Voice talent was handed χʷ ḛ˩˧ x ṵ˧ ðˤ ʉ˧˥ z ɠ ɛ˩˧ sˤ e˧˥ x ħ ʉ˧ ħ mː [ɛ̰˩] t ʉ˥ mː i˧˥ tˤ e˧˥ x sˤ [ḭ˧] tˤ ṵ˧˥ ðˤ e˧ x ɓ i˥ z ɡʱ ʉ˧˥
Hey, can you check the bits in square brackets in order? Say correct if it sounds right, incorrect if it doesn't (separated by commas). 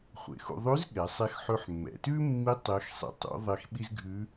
correct, correct